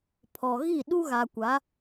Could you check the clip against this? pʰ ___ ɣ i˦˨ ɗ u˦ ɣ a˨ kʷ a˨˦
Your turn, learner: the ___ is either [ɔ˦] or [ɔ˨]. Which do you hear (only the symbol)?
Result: ɔ˨